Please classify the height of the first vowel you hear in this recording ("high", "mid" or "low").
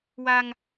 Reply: low